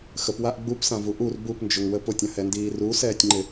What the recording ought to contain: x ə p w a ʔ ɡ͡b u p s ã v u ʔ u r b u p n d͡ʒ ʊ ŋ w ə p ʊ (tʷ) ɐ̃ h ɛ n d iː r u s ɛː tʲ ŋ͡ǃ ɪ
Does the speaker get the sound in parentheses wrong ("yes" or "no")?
yes